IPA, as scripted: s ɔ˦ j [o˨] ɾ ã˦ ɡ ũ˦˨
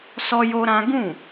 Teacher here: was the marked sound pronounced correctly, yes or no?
no